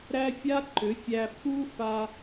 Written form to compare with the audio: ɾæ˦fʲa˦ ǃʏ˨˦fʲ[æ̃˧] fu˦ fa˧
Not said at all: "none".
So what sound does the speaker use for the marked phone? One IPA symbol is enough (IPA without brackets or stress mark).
æ˧